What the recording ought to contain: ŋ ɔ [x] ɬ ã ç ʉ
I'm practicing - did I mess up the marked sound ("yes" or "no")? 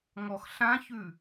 no